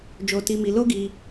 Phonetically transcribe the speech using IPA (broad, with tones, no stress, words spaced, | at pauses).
d͡ʒo˧ti˧mi˧ lo˦ɡi˧